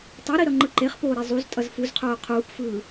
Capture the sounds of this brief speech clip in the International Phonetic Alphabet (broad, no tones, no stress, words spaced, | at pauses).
tˤeɾi ɾʌŋ͡ǃɯǃeχpoː ɾezˤuztʼʌz fuzqʰoː qʰuːpfɯː